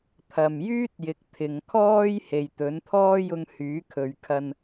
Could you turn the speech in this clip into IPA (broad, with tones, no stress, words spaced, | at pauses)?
t̪ʰɐ˨mjyː˥t̚jɪ˨k̚ t̪ʰɪ˨ŋkʰɔː˥j he˨jt̪ɵ˨˥nt̪ʰɔː˥ jʊ˧ŋ hyː˨˥kʰɵ˨ɥkʰɐ˧n